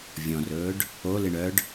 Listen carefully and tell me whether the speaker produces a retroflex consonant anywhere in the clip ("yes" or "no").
yes